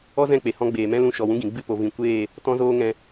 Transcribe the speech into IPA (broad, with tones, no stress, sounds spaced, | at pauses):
ɔ˦ z ɛ̃˦˨ k͡p e˨ h ɔ̃˧ ɡ͡b eː˨ m ɛ̃˦ l ũ˧ ʃ ɔ˨ w ũ˦ ɡ ĩ˨ ɡ͡b ɨ˦˨ p o˨ v ĩ˨ kʷ eː˦˨ | t ɔ̃˦ z oː˦ ŋ ɛ̃˧